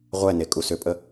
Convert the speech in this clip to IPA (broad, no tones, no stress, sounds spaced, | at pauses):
ʁʷ ɛ n e kʼ u s ʏ pʼ ə